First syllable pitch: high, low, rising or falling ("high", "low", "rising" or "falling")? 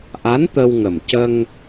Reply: rising